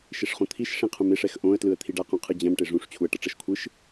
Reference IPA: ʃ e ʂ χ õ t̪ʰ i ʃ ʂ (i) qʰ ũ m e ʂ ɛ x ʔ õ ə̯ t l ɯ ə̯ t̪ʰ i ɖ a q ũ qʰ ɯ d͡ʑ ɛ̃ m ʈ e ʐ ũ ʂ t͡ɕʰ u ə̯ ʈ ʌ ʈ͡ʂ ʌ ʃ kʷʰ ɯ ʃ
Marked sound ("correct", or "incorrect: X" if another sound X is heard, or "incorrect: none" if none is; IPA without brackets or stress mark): incorrect: ĩ